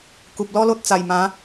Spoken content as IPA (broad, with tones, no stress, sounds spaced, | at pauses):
k u˨ p̚ l ɔ˦ l o˦ t̚ t͡s a˨˩ j m ã˨˦